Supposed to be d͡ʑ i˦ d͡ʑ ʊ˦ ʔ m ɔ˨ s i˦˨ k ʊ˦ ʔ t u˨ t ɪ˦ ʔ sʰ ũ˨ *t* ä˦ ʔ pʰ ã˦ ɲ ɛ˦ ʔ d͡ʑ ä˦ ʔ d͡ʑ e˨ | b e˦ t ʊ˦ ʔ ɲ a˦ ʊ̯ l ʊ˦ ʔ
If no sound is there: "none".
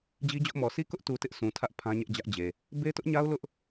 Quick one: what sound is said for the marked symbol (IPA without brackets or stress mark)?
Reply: tʰ